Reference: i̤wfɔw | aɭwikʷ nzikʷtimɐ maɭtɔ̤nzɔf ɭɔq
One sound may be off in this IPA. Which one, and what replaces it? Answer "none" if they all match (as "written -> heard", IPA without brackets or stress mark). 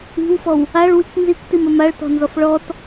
q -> t